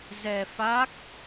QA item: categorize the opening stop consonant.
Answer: plain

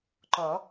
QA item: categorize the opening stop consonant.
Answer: click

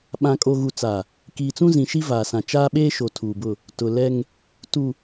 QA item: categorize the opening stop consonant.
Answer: implosive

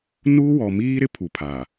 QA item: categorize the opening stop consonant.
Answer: aspirated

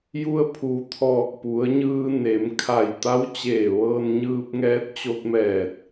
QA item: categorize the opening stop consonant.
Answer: aspirated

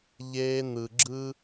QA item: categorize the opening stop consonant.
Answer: click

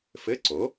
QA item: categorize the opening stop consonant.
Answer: click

